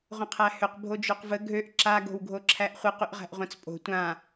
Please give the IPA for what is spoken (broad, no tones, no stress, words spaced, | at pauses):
ʁʷə̃qʰæhʏq bʱod͡ʒoqvə ɡʱøʔ ǁaɡ o̤wɡʱoǁʰæʔχʷiq yʔʁæ̤ʔʁʷãt͡spʼo̤ tʷã